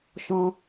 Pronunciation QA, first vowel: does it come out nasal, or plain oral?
nasal